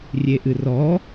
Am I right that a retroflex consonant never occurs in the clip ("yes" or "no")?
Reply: yes